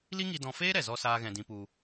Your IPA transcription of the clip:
l i˦ ŋ i˧ d ɔ̃˧ f eː˦ ɾ ɛ˨ z ɔ˧ s aː˦ ɣ ɛ̃˧ d ĩ˧ p u˧

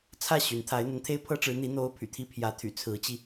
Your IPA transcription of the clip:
t͡sʰ ä˥˩ ɕ y˧˥ n t̪ʰ a˧˥ ɪ̯ n̪ ə˧˥ n t̪ʰ e˥ ɪ̯ pʰ ɤ˥ ʈ͡ʂ ɻ̩˧˥ n̪ i˧˥ n̪ o˧˥ ʊ̯ pʰ y̰˨˩ t̪ʰ i˥ pʰ j ä˧˥ t̪ʰ y̰˨˩ t͡sʰ ɹ̩˧˥ t͡ɕ i˧

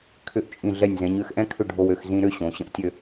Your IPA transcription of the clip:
kʰ ʏ˧˩ ʔ t͡ʃʼ ĩ˧˩ ɮ ɛ˧˩ nʲ z ɛ̃˩˧ ɲ ø˥˧ x ʔ ɛ̃˥ kʰ ʏ˥˧ ɖʱ o˧ w ø˩˧ x z ĩ˧ ɾ ʏ˥˧ ɕ õ˩˧ ɕ ə̃˧ ʔ tʲ ø˥˧

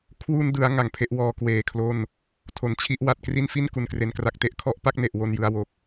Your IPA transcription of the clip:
kʰ w u˧ n d ɯ˩˦ a̯ ŋ a˨˩ ŋ pʰ e˦˥ ʔ w ɔː˧ k w eː˨˩ kʰ l o˥˩ n | tʰ o˨˩ n t͡ɕʰ i˦˥ ʔ w a˨˩ t̚ k r i˥˩ n f i˥˩ n k u˨˩ n k r e˧ n k r a˦˥ k̚ t e˥˩ ʔ kʰ ɔ˦˥ ʔ p a˥˩ k̚ n e˨˩ ʔ w o˧ n j ɯ˧ a̯ w o˨˩ k̚

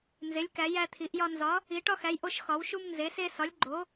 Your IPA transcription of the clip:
n z e˩˧ lʲ k æ˩˧ j æ˧ t̪ʰ i˩˧ ʔ j ɒ˧ n z ɒ˩˧ | i˩˧ ʈ ɒ˧ x æ˩˧ j ʔ o˧ ʃ x ɒ˩˧ w ʃ u˧ m n z e˩˧ s e˧ s ɒ˩˧ lʲ ɡ͡ǃ o˩˧

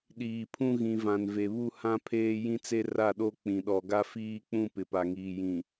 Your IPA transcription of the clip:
ɗ iː˨ pʰ ũ˦ ɣ ĩ˨ v ã˨ n v e˨ β u˦ h ã˦ pʰ eː˦ j ĩ˦ t͡s e˦ r a˦˨ ɗ o˦ k͡p ĩ˨ ɗ ɔ˨ ɡ a˦ f iː˦ k͡p ũ˦ p ɪ˨ p a˨ ŋ iː˨ j ĩ˨

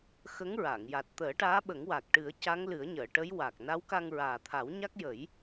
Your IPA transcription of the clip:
x ə˧˥ ŋ ɹ a˨˩˨ ŋ j a˨˩ t̚ t̪ əː˨˩˦ ʈ aː˧˥ ɓ ə˨˩˦ ŋ w a˨˩ k̚ ʈ ɨ˨˩˦ ə̯ c a˧˥ ŋ l ɨ˨˩˦ ə̯ ɲ əː˨˩˨ ʈ ə˧˥ j w a˨˩ k̚ n a˧˥ w k a˧ ŋ ɹ aː˨˩ t̪ʰ a˨˩˦ w ɲ a˦˥ k̚ j ə˨˩˦ j

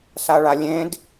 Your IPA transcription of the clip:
s a ɭ a lʲ ẽ d

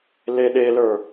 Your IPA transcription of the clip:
l e ɗ e l ə˞

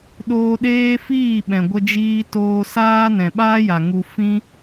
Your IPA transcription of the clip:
ɗ oː˧ ɗ eː˦ f iː˦˨ ɓ ɛ̃˨ ɡʷ ə˧ d͡ʒ iː˧ t oː˧ s aː˦ n ɛ̃˨ ɓ aː˦ j a˨ ŋ u˧ f ĩ˦

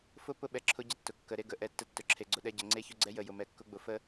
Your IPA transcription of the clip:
f ʊ˦ p ʊ˦ ɓ ɛ˨ ǁʰ ʊ˦ ɟ ə˦ tː ʊ˨ kː ə˨ ɾ e˦ ɡ ə˨ ʔ ɛ˦˨ tː ə˦ tː ʊ˨ ǁʰ e˨ ɡ͡ǀ ʊ˨ ɗ ɛ˦ ɟ ə˨ ŋ͡ǀ e˦˨ ç ʊ˦ ɡ͡ǀ ɛ˦ j ə˨ j ʊ˨ m ɛ˨ kː ʊ˦ ɡ͡b ʊ˨ f ə˦

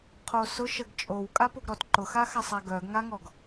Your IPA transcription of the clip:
qʰ o s ʊ ʃ ə ɡ t͡ʃʼ o w kʼ a p o ɡ ɾ ɔ t ǃ ʊ x a x a sˤ æ ɡ œ ɡ ŋ a ŋ ɔ ɡ

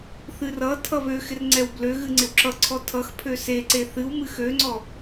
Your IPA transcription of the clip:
θ ɨ r ʌ tʰ ʌ β ø x ɪ r ŋ͡ǀ ɛ w b l ø ɣ ɨ ŋ͡ǀ ɪ w ǁ ʌ ǀʰ ɔ tʰ ʌ x pʰ ø s e ǀ e θ ɨ w m ɨ x ø ŋ͡ǀ ɔ

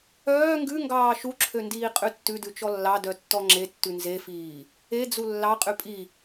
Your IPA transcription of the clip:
œː ŋ ɡ ʉ ŋ ɡ ɑː ʃ u ǁʰ ø n d iː qʼ ʉ tː ʉ d ʉ t͡ʃ ɔ lː ɑ d œ tː ɔ ŋ͡ǁ e tː ʉ n z e f iː | e d͡z u lː ɑ qʼ ʉ pʼ i

